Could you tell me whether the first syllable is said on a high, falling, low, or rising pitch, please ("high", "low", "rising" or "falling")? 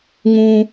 high